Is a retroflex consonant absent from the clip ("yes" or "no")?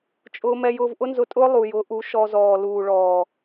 no